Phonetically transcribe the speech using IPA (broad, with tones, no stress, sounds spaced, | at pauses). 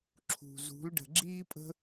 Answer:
ǁʰ ṳ˨ z ṳ˨˦ l ɖ ə̤˨ ɡ͡ǁ iː˦ pʼ ə̤˦